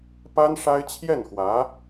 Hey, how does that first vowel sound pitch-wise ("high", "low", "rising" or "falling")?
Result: high